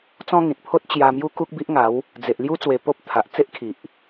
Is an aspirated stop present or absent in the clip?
present